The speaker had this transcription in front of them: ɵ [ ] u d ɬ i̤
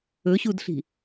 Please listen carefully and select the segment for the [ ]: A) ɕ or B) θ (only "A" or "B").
A